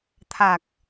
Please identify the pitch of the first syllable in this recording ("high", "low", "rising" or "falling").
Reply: low